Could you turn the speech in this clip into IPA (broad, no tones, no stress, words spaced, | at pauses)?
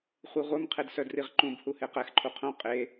χʷiʁʷœm qʰedsœdriʁǃũb huheqɛx ǃʰuqʰõ qʼe